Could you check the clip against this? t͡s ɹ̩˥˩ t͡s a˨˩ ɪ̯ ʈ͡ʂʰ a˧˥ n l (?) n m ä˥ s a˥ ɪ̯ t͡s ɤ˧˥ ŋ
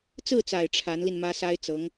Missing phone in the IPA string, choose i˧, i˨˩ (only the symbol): i˧